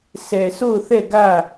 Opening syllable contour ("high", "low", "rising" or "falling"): low